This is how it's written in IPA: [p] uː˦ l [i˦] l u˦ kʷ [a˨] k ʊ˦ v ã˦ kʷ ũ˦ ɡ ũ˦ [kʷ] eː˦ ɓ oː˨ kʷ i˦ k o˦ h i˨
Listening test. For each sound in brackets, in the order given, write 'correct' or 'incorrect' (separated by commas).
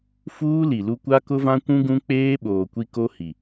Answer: incorrect, incorrect, incorrect, incorrect